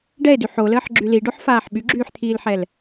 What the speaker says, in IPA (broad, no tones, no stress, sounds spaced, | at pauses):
ɖ ɛ e̯ d y ħ o l əː ħ ɡ͡ǁ y l i ɖ o ħ f aː ħ ɓ y ɡ͡ǁ yː ħ t̪ʰ iː l ħ ɛ l